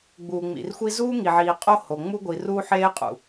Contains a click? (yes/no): no